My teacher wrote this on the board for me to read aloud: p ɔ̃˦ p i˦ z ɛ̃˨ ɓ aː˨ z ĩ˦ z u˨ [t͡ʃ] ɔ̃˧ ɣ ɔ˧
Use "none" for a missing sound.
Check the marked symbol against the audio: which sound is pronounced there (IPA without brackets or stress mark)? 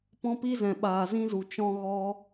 t͡ʃ